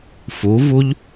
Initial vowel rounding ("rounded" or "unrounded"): rounded